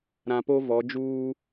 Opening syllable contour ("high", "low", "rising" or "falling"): low